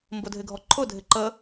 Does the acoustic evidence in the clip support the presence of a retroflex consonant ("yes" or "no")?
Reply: no